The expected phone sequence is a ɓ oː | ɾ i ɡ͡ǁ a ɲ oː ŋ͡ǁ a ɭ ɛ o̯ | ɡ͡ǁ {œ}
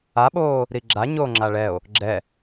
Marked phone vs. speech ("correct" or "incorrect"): incorrect